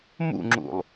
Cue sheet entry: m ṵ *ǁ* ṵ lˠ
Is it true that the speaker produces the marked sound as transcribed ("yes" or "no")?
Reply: no